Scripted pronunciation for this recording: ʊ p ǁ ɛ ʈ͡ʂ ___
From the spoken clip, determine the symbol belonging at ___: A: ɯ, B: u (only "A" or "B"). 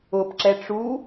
B